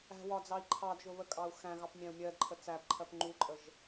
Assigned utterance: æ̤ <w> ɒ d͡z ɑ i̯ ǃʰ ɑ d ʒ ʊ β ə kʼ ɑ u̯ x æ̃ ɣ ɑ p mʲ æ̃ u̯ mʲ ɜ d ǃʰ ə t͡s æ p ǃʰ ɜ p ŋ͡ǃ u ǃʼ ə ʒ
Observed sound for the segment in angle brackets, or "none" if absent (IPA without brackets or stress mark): w